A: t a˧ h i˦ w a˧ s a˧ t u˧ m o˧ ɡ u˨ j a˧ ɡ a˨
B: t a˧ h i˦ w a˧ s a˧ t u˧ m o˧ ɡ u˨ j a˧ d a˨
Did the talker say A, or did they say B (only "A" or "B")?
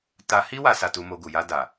B